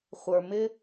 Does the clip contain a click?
no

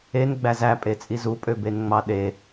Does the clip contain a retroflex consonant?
no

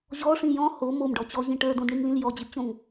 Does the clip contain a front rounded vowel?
no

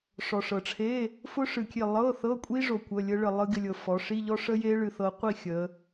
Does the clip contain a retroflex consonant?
yes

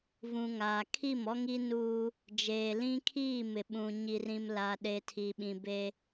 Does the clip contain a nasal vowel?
yes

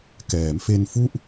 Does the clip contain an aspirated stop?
no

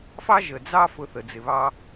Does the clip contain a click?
no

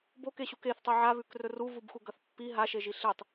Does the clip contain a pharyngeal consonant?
yes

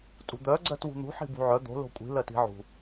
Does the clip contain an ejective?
yes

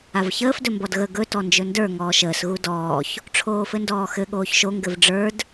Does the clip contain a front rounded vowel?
no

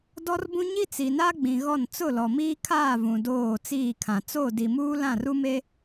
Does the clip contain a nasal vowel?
yes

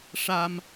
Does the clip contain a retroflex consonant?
yes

